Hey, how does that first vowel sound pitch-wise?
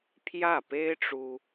falling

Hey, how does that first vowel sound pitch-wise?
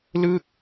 falling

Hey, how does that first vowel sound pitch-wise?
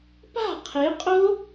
falling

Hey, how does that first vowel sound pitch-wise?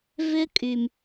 high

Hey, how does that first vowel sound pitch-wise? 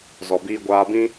low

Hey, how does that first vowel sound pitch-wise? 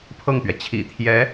falling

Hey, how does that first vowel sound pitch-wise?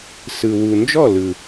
low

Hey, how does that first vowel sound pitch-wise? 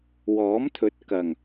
rising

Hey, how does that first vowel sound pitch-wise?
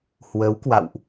rising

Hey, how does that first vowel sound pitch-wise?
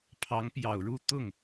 rising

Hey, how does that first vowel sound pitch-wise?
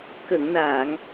low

